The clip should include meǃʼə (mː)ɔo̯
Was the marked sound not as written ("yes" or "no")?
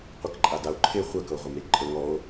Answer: yes